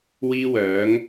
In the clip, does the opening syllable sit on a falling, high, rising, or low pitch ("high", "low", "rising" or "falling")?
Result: high